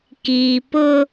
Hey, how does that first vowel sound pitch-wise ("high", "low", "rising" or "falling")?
low